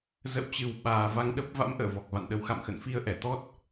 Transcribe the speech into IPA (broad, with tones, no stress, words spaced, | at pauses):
zə̰˧˨wt͡ɕɨ˨˩w ɓaː˨˩ va˧ŋ ɗə˦˥p̚ va̰˧˥mʔə̰ː˧˨ vɔ˨˩k̚va̰˧˨nɗə˨˦w xa̰˧˨mxə̰˧˨n fi˧ə̯ʔɛ˧˩t̪ɔ˦˥t̚